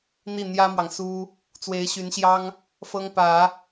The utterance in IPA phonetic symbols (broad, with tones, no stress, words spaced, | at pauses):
n̪i˥˩n̪jä˥mwɑ˨ŋ su˥ | t͡swe˧˥ɪ̯ɕy˧˥nɕjɑ˥ŋ | fɤ˥ŋpä˨˩˦